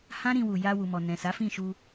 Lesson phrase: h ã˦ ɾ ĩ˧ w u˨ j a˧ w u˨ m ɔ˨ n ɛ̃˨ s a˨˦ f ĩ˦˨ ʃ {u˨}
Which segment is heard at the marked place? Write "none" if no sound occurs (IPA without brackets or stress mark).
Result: u˧